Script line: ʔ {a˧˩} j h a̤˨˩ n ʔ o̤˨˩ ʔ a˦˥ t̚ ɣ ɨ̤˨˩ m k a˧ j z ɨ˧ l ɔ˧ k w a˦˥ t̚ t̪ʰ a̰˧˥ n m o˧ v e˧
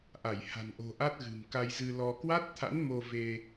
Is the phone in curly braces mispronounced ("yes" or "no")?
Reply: no